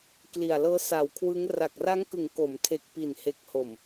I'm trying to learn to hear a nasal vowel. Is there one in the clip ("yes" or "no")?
no